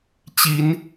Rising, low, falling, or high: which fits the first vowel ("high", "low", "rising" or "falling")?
rising